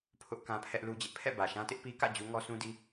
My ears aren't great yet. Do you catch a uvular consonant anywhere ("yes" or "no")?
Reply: no